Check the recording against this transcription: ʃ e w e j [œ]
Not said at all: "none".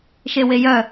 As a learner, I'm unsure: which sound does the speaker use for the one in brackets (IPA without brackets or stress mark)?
œ